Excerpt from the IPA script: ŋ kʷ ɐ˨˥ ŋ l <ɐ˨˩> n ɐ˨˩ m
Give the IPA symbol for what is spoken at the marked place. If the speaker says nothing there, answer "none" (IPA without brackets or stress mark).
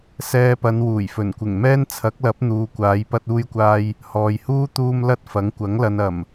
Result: ɐ˧